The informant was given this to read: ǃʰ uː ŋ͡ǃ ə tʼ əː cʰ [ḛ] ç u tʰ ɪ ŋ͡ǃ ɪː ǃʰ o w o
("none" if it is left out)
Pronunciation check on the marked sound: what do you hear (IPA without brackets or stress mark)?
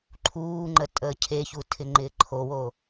e